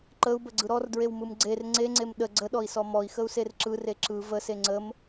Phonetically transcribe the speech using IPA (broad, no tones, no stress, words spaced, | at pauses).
ǃəu̯bəɡ͡ǀɯ ɾɔrdɹewmɯm ɡ͡ǀer ŋ͡ǀeŋ͡ǀem ɗə ɡ͡ǀəɗɔi̯sɔ mɔi̯xəu̯ser ǁɯre ǁɯ vəse ŋ͡ǀəm